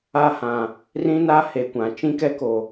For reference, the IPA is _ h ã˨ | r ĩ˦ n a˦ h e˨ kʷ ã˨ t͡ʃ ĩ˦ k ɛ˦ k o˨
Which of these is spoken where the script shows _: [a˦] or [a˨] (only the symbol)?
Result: a˦